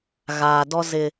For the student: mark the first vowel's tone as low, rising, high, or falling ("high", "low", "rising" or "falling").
low